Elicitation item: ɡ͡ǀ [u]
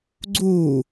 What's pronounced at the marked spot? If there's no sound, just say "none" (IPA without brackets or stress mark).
u